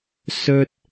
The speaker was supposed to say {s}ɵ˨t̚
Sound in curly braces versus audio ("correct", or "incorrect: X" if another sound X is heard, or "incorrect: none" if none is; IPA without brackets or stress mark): correct